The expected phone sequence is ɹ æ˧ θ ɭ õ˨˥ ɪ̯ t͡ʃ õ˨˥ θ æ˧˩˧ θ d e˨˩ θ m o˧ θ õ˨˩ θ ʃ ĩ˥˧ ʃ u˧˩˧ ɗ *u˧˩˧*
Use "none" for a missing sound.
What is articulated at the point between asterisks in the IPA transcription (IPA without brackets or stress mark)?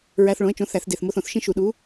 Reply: u˨˥